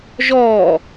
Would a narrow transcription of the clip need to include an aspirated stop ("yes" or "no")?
no